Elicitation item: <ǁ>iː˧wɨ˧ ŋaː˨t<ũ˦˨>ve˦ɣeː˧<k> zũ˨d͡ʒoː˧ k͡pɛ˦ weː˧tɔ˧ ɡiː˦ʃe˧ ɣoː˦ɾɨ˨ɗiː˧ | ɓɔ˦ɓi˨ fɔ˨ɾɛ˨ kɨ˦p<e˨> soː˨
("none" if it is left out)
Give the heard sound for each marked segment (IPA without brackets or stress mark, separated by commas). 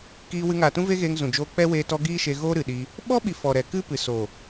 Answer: k, ũ˦, ŋ, ɨ˨